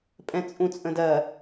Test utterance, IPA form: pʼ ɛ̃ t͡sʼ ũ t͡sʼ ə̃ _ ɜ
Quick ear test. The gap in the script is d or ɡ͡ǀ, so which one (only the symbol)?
d